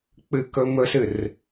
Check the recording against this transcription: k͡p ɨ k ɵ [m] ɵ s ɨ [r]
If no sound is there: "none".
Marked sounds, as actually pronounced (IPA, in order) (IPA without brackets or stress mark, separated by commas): m, r